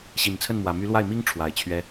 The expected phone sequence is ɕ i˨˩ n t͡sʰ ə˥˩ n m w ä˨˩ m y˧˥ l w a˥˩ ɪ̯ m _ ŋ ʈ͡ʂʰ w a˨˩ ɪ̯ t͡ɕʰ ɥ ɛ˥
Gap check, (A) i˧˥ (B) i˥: B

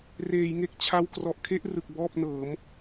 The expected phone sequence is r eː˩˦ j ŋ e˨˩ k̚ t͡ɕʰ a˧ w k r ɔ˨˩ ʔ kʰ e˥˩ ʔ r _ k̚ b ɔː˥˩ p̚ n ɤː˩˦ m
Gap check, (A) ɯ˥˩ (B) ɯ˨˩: B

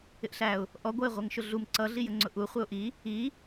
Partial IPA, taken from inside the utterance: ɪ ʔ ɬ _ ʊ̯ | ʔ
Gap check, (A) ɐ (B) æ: B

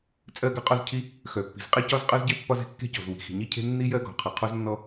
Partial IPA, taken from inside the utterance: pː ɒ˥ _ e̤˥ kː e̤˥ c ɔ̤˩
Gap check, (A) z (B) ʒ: A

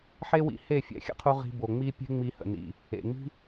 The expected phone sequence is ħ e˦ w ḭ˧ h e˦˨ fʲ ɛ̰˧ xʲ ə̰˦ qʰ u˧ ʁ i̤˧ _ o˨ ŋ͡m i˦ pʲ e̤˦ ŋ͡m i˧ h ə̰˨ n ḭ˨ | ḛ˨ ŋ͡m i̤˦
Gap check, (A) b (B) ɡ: A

